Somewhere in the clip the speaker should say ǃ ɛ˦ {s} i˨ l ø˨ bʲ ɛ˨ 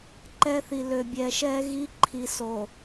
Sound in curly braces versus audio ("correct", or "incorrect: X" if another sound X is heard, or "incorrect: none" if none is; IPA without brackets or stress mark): incorrect: θ